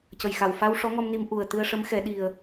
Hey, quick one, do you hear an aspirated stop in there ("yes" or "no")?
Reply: no